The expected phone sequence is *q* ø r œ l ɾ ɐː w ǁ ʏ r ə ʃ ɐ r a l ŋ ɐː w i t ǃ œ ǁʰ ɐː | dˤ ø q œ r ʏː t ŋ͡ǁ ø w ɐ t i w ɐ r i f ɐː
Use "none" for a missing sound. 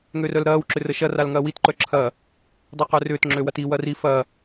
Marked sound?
ŋ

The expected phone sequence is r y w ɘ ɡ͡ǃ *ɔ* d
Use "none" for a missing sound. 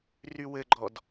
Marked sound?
ɔ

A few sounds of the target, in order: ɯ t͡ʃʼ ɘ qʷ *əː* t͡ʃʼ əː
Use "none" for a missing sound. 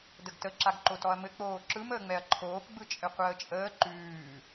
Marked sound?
əː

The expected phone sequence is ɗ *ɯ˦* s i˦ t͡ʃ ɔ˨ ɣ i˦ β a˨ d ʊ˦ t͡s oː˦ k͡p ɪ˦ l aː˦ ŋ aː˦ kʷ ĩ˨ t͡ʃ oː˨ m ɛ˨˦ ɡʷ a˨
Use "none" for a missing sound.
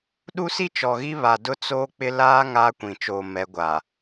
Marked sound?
u˦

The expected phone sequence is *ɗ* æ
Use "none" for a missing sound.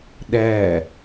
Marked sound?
ɗ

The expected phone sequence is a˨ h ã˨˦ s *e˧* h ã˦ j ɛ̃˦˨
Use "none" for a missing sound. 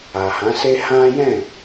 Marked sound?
e˦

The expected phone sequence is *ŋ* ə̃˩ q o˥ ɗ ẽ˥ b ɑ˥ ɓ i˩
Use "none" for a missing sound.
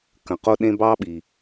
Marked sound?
k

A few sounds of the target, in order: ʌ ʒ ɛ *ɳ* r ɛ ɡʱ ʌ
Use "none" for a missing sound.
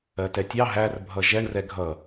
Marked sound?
ɳ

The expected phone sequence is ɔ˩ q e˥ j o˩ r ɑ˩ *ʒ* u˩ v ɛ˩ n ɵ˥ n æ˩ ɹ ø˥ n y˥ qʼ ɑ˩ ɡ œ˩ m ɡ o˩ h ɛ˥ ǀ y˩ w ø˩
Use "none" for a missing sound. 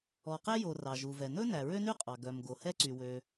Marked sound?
ʒ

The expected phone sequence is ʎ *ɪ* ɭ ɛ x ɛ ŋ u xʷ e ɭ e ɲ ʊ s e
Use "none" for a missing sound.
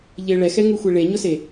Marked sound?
ɪ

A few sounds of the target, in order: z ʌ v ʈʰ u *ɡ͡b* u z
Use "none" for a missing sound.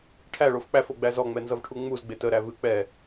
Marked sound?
ŋ͡m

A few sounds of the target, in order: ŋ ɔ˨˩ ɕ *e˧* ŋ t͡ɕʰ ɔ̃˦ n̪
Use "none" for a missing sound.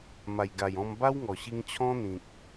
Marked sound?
i˧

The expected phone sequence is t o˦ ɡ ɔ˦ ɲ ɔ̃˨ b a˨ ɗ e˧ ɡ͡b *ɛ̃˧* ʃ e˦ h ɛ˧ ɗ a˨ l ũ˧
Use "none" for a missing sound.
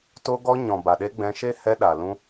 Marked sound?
ɛ̃˧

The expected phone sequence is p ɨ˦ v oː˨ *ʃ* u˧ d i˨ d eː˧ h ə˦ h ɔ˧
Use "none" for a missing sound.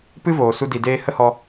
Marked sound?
s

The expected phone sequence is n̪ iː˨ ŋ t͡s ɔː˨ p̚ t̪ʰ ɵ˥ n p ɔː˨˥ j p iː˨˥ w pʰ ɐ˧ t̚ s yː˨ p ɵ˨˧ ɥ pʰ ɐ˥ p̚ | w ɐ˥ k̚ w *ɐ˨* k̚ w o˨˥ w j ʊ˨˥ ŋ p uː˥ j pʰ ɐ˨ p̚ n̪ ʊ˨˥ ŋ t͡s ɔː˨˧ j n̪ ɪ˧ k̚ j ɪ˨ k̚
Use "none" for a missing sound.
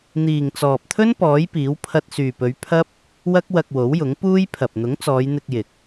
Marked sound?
ɐ˧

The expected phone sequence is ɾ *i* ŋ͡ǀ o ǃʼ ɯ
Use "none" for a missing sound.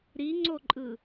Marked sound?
i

